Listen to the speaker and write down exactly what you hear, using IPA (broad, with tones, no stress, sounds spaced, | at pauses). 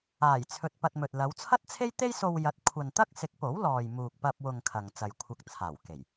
aː˨˩ j t͡sʰ ɵ˧ t̚ p ɐ˧ t̚ m ɵ˨ t̚ l ɐ˨˧ w t͡sʰ ɐ˥ t̚ t͡sʰ e˥ j t̪ e˥ j s o˧ w j ɐ˨˥ t̚ kʷʰ ɐ˨ n t̪ ɐ˥ k̚ s ɪ˨˥ k̚ p o˨˥ w l ɔː˨ j m uː˨ k̚ p ɐ˧ p̚ w ʊ˨ ŋ kʰ ɐ˨ ŋ t͡s ɐ˨ j kʷʰ ɐ˧ k̚ t͡sʰ aː˨˩ w k e˨˩ j